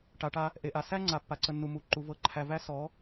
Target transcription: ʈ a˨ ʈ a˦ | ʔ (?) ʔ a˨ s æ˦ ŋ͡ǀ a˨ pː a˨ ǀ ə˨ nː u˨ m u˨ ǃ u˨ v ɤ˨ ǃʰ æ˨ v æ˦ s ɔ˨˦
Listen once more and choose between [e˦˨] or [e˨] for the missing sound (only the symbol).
e˨